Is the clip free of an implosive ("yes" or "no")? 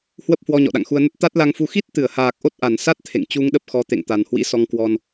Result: no